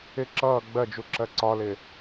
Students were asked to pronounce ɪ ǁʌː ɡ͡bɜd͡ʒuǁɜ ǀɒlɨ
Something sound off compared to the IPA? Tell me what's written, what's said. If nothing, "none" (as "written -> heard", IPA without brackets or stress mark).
ɨ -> ɪ